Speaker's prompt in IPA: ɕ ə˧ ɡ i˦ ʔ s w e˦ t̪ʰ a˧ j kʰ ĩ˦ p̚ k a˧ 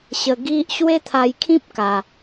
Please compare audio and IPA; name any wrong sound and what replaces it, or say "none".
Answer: s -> ɕ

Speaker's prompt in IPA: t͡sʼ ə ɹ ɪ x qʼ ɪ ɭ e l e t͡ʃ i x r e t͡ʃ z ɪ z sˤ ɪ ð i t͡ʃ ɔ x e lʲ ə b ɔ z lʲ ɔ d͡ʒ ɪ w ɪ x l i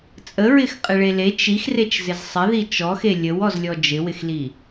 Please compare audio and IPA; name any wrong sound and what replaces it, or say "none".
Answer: b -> w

